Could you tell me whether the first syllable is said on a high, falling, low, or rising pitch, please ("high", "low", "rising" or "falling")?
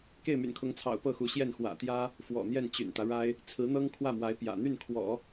falling